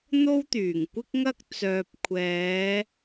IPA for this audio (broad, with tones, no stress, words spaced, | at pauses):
n̪o˥wt̪yː˨˩ŋkʷɪ˥k̚ŋɐ˥k̚ t͡sœː˨p̚ kʷʰɛː˨˧